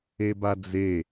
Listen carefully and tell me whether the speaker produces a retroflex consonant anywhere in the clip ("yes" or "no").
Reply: no